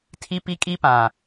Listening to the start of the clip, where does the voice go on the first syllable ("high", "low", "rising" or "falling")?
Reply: high